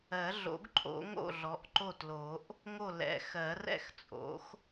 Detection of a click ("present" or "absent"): present